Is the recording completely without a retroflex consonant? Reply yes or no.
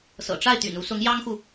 no